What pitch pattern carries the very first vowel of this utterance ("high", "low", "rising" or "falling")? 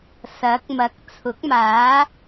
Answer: rising